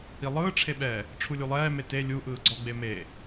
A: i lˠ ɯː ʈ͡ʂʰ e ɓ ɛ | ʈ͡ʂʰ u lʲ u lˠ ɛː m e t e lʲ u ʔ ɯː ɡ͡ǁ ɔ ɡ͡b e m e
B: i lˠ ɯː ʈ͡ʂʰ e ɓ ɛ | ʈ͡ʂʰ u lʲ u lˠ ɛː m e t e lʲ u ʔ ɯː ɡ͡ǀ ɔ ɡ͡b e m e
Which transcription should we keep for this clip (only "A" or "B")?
B